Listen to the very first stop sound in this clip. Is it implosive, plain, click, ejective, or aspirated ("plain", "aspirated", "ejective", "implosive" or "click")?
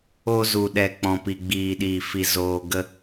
implosive